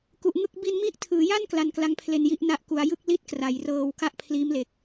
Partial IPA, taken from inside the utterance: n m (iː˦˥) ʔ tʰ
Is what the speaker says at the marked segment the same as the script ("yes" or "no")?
no